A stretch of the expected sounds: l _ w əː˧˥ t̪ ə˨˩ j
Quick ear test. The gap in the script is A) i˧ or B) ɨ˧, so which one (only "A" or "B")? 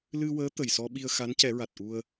B